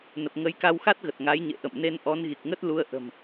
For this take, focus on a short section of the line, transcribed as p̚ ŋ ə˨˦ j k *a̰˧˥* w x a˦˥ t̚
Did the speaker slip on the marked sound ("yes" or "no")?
yes